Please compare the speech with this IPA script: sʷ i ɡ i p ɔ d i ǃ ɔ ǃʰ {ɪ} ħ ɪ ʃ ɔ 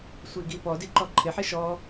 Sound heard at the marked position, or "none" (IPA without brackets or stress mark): ɪ